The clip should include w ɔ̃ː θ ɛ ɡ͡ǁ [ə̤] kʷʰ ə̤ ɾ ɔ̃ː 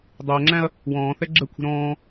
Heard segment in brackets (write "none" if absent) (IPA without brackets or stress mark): ə